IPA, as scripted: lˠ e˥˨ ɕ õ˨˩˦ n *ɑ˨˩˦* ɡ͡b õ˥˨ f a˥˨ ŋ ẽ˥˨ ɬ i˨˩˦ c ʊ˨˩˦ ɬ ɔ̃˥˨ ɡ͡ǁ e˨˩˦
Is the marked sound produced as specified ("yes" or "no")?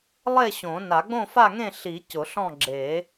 no